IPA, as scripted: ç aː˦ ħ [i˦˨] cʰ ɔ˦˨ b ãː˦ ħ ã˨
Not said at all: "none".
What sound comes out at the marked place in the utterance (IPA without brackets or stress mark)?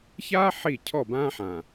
i˦˨